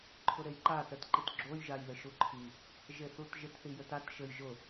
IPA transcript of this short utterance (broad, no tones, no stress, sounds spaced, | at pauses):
ǃʰ ʊ ɾ e j ǃ a t ɛ t ǃ i t ɡ͡ǁ o j ʒ a j ð ɘ ʃ u ǃʰ i | ʒ e θ u t ʒ ɪ t θ i j ɘ t a t ʃ ɘ j ʒ ʊ